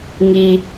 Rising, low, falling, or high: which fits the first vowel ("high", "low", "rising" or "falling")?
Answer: low